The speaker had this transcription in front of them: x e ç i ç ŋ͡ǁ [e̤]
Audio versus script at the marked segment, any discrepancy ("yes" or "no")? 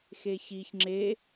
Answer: yes